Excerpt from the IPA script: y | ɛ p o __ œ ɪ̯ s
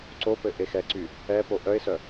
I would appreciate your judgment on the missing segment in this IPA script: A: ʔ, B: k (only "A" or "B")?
A